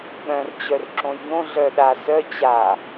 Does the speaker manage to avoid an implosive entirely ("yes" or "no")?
no